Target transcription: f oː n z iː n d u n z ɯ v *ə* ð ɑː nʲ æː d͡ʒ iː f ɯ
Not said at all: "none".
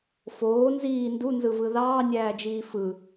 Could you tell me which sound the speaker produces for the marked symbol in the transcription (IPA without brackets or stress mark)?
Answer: ɯ